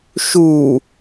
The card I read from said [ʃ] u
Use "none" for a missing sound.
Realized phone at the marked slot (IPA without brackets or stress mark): ʃ